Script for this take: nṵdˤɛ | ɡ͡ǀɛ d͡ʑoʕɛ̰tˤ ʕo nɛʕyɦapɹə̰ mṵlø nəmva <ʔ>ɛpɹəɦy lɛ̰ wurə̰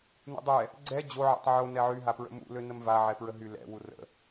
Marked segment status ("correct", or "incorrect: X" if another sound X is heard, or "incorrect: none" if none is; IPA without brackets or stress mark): incorrect: ʕ